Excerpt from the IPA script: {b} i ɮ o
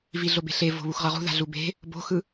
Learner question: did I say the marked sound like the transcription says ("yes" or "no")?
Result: no